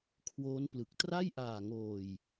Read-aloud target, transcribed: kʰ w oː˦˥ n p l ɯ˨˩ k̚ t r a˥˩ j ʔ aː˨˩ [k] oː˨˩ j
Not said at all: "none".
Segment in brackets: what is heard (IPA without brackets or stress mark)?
ŋ